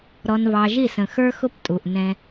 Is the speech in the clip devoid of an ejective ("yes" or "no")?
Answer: no